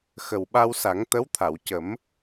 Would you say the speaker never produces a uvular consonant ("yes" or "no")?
yes